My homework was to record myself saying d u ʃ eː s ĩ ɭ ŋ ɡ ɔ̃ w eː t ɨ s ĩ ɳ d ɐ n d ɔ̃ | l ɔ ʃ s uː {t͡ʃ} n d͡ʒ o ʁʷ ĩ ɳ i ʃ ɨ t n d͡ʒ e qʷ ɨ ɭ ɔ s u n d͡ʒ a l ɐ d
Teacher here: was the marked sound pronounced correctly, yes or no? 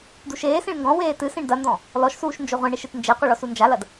no